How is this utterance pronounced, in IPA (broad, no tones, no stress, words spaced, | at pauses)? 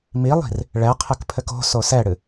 milˠi̤r | ɭɛqʰɘkpʰɘk o̤ sosɛɽɨ